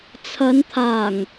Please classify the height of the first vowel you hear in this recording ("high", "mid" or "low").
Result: low